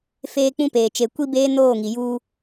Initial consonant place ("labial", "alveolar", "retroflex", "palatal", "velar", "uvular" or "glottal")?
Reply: labial